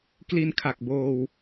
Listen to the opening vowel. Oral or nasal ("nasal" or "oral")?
oral